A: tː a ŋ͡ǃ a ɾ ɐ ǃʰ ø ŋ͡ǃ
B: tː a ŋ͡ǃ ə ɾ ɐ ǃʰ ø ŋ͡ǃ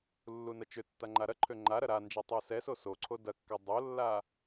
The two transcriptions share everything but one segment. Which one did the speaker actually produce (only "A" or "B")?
A